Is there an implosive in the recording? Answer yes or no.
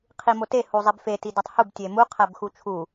no